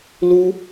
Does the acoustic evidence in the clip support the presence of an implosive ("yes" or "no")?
no